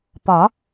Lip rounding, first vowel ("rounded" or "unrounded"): rounded